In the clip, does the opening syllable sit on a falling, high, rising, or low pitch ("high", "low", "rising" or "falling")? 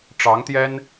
rising